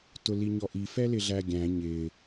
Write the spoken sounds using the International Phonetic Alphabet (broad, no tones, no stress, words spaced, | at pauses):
tʊliɲɔʔi fɛlɪɮæɡʲæ̃ ɲɪ